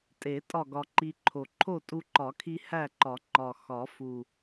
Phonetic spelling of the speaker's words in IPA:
tʼ e˨˩˦ tʼ ɒ˥˨ ɡ ɒ˧ ǃ i˧ ǃʰ o˨˩ ǃʰ o˥˨ tʼ u˧ ǃ ɒ˨˩˦ kʰ i˧ h æ˥˨ ǃ ɒ˨˩˦ ŋ͡ǃ ɒ˨˩ x ɒ˨˩˦ f u˨˩

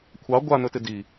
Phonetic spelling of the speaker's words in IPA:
kʷʰ ɑ ɡʷ a n ɵ t ɪ d i

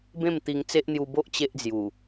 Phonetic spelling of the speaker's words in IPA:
b ẽ˥˧ m t̪ i˧ ŋ t͡s e˦ ʔ n̪ j u˧ b o˦ ʔ t͡ɕ e˦ ʔ d͡z j u˨˩

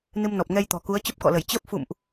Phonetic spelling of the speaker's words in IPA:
n ɨ˧ m n ɔ˨˩ p̚ ŋ ɛ˧ j t̪ ɔ̤˨˩ k u˨˦ ə̯ t͡ɕ ə˦˥ p̚ k ɔ̰˧˨ l ə˧˩ j t͡ɕ əː˦˥ p̚ f ṵ˧˨ m ʔ

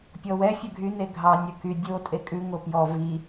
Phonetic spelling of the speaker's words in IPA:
pʲ ɔ w ɛ fʲ œ ɡʱ y n e ɡʱ ɑ nʲ œ k y dʲ o tʼ e kʼ ʉ ŋ o p j ɔ v i

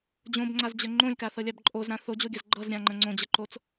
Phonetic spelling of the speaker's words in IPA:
d͡ʑ õ b ŋ͡ǀ a z d͡ʑ ə ŋ͡ǃ õ lʲ k a θ ɤ lʲ a b ǃʼ o z ɾ ã θ o d͡ʑ o ɡʲ ɤ z ɡ͡ǃ ɤ z ɾʲ ã ŋ͡ǃ ə̃ ŋ͡ǀ õ d͡ʑ ə ǃ o t͡s

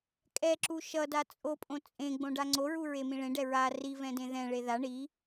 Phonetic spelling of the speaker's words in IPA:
kʼ ɛ ǁ u ʃ ʌ d a t͡sʼ o pʼ õ t͡sʼ ẽ ɡ͡b õ ɖ a ŋ͡ǀ o ɹ u ɹ e m ĩ ɭ ẽ ɖ ɛ ɹ a r i v ɛ̃ d ẽ ð ɛ̃ ɭ e ð a ɳ i

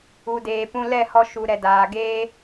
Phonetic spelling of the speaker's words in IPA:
u˨ d eː˨ p ũ˧ l ɛ˦˨ h ɔ˧ ʃ u˧ ɾ ɛ˧ d aː˧ ɡ eː˧

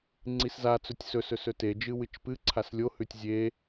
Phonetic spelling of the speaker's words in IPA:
ŋ͡ǀ i s z a t͡s ɵ tʲ s ɵ s ɵ s ɵ t e d͡ʒ ɨ w ɨ t͡ʃ p ɨ ǀʰ a s lʲ o h ʉ tʲ zʲ e

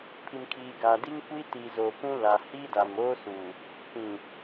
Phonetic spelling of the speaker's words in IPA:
pʰ i˨ m kʰ iː˨ ɡ aː˨ d i˦ ŋ kʷ i˦ t i˨ z oː˨ p ũ˦ l a˨ h i˦ d a˨ m oː˦ s uː˨ | p ĩ˨

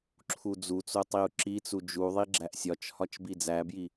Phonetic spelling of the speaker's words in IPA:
ǁʰ u d͡z u t͡s o tˤ i u̯ ǁ i t͡s u d͡ʒ u ðˤ i ɡ͡ǁ æ ʔ sʲ ɒ t͡ʃ h ɒ t͡ʃ b i d͡z æ b j i

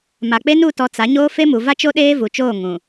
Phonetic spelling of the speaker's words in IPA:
m a˨ k͡p e˦ n u˦˨ t ɔ˨ t͡s a˨˦ ɲ oː˦ f e˦ m u˨ v a˦ t͡ʃ o˦ ɗ eː˦ v u˨ t͡ʃ oː˦˨ ŋ ũ˨

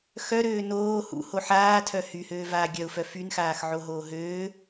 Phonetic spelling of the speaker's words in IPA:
x œ ɾ øː n oː h ṵ h o ħ aː tʰ œ h y h øː v aː ɡʲ œ ʊ̯ f œ f y n x aː x ʕ o ɦ oː ɦ øː

